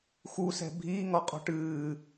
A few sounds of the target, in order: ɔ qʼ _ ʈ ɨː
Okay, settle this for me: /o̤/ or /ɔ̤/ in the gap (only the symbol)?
ɔ̤